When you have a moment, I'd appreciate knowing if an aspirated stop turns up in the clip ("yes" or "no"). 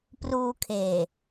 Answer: yes